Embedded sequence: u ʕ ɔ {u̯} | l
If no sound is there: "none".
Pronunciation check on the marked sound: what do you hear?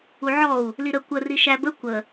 u̯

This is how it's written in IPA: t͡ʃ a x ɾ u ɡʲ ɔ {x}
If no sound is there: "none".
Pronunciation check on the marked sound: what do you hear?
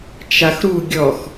x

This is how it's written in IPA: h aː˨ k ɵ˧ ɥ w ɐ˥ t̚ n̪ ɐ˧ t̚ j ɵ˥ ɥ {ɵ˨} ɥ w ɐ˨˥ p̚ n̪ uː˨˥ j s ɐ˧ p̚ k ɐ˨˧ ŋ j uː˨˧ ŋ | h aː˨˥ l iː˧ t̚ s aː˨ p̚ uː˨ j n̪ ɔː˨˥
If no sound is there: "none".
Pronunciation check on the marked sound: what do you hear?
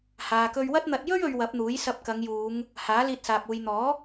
ɵ˨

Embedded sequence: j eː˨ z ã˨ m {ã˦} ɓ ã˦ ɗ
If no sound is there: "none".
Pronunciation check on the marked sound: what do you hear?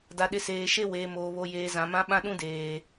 ã˦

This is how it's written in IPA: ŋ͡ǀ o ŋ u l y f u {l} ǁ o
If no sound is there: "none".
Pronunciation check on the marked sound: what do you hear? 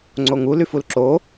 l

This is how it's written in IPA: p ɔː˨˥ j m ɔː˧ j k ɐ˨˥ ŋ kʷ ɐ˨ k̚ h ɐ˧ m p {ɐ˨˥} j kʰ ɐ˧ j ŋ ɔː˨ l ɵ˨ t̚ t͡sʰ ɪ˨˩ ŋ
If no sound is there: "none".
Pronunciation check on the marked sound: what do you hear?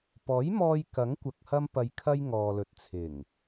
ɐ˨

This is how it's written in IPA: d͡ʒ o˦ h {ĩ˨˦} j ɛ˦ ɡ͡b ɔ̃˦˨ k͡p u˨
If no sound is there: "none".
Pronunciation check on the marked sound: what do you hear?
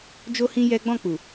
ĩ˦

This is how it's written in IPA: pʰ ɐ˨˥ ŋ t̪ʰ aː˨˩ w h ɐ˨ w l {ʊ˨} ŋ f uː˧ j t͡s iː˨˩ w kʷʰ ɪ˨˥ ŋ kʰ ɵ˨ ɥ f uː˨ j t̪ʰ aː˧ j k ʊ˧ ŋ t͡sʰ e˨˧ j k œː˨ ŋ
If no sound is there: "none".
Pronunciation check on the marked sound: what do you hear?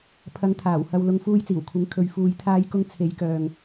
ʊ˨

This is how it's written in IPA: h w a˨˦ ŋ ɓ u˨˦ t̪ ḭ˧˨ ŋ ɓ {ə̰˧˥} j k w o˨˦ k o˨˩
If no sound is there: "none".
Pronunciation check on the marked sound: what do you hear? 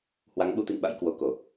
a̰˧˥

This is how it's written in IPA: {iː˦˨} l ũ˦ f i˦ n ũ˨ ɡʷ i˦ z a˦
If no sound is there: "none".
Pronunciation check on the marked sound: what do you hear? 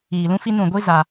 iː˨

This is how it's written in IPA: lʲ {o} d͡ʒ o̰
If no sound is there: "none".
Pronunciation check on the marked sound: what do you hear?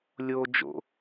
o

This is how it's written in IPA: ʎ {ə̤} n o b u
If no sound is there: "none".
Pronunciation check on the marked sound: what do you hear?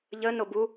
ə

